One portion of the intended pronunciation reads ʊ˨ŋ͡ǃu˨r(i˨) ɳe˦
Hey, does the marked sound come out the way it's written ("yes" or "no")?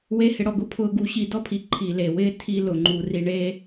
no